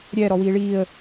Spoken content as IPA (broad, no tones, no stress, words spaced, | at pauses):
ɾʲɛ ɾɔwiːɭiːə̯